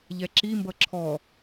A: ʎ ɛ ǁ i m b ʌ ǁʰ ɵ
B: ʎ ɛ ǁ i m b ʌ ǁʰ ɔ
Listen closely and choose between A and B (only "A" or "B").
B